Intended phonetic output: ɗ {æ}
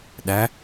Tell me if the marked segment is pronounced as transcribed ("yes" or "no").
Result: yes